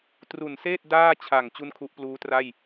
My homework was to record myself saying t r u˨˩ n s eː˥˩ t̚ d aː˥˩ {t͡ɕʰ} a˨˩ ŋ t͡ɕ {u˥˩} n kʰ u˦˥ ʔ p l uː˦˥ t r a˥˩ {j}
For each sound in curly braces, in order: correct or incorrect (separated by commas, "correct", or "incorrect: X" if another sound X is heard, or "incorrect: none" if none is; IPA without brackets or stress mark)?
correct, correct, correct